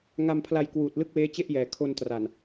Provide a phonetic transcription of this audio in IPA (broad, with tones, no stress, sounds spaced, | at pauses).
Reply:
ŋ a˧ m pʰ l a˧ j k w uː˨˩ t̚ l ɯ˥˩ k̚ w eː˦˥ t͡ɕ e˥˩ ʔ j ɛː˩˦ kʰ o˧ n t r a˨˩ n